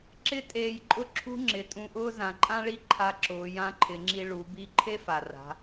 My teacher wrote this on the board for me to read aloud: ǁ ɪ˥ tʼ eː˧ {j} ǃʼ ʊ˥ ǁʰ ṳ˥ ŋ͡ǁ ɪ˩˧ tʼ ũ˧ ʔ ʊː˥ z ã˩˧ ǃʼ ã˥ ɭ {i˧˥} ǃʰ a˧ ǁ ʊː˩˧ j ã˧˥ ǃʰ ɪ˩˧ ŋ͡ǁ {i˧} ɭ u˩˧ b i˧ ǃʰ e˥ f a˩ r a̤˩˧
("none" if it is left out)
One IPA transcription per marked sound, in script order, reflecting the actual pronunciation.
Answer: j, i˥, i˧

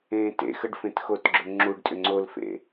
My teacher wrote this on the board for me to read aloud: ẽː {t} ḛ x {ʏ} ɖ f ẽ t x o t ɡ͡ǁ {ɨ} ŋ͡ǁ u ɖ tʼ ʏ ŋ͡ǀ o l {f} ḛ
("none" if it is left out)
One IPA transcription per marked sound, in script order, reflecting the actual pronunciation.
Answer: t, ə, ʏ, f

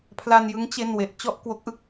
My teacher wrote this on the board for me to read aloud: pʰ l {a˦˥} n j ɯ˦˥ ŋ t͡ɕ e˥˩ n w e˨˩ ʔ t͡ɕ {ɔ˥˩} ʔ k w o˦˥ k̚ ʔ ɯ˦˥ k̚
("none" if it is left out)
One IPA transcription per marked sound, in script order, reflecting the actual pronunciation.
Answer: a˧, ɔ˥˩

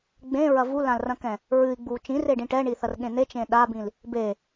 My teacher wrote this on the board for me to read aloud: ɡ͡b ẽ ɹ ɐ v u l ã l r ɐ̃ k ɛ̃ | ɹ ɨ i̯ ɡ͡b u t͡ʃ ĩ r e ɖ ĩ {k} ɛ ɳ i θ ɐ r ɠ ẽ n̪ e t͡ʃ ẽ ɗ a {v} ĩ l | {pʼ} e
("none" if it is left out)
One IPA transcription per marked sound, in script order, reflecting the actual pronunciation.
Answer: ʈ, b, b

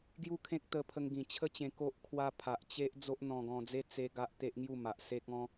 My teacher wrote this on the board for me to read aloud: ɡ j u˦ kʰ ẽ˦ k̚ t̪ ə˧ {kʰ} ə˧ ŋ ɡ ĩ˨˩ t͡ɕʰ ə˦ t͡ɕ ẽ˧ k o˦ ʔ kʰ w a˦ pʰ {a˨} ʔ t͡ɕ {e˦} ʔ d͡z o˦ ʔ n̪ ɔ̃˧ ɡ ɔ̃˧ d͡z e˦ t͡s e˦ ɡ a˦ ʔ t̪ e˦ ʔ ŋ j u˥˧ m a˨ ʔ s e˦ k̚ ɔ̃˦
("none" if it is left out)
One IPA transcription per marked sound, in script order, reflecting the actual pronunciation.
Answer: pʰ, a˨, e˦

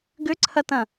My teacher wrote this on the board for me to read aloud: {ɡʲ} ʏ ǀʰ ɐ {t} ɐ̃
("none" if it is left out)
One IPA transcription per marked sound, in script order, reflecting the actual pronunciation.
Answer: ɡ, t

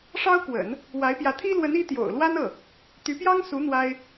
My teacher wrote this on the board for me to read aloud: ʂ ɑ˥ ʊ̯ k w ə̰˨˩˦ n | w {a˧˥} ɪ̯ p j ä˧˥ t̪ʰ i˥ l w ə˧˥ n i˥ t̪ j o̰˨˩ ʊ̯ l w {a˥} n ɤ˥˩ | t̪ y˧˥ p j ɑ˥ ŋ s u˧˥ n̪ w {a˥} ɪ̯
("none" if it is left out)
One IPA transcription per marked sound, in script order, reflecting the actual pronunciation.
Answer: a˧˥, a˥, a˥

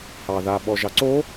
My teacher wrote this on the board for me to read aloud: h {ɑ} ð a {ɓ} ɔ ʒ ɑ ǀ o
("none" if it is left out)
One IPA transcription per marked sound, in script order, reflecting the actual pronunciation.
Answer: ɑ, ɓ

